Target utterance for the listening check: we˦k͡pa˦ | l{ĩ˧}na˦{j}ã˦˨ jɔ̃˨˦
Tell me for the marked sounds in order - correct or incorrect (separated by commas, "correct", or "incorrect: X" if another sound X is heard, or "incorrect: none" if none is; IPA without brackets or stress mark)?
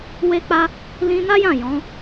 correct, correct